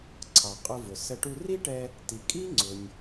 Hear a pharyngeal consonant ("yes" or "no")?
no